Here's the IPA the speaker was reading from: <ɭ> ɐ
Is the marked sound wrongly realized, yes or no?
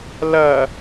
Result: yes